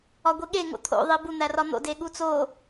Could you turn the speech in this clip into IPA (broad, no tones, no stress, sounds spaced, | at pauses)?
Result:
ɒ ɡʷ i ɠ e ŋ o̰ t̪ʰ o̰ ðˤ i b u n̪ æ r ɒ n̪ o̰ d e ɠ u t͡s o